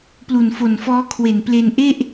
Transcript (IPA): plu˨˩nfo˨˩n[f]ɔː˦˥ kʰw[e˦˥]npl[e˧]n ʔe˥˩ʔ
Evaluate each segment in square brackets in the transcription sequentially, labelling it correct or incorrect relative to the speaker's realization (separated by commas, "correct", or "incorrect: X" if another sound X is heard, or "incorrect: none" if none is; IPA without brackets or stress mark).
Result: correct, incorrect: e˨˩, correct